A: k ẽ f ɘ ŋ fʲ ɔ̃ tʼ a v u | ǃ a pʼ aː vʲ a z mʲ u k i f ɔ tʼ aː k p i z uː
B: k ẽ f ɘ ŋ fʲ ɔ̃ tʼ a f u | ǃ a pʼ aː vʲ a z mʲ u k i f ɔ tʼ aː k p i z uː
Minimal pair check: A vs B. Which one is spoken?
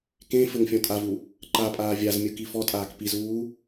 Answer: A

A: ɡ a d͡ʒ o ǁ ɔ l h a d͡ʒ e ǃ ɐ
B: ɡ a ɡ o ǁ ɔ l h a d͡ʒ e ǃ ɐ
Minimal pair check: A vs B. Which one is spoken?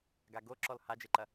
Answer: B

